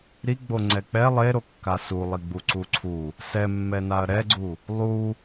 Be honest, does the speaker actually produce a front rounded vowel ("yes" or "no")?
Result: no